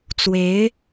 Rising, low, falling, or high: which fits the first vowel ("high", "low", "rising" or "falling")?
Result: rising